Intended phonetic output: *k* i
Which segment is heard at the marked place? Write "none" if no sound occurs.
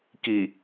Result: k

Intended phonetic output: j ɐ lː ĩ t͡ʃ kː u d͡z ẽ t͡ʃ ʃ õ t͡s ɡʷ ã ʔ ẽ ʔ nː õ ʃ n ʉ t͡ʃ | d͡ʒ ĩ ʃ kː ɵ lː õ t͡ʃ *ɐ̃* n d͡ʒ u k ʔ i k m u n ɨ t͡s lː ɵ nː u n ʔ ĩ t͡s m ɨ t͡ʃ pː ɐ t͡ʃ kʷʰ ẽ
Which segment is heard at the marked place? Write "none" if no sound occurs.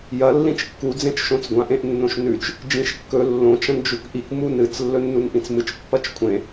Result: ɐ̃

